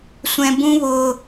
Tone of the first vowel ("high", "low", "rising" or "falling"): high